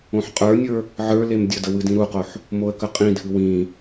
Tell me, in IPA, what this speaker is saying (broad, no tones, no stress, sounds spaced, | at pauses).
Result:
õ ħ qʼ ə˞ nʲ ə˞ | ʕ ə˞ l e m dʲ ə d ə w ɨ d ĩ ɾ u q o ħ | m o ə̯ k ə qʼ ĩ dʱ ɨ w ĩ